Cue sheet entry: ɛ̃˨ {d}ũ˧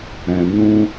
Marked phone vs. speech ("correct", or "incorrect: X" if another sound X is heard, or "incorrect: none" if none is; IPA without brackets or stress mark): incorrect: n